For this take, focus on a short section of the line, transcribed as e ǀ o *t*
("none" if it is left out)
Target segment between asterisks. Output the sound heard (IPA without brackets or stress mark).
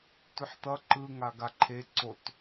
t